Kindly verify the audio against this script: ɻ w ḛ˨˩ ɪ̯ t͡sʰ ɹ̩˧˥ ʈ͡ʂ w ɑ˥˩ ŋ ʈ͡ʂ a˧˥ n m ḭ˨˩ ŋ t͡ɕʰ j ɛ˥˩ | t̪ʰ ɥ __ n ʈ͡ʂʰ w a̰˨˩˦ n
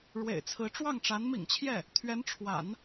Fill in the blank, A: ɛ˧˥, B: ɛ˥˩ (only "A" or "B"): A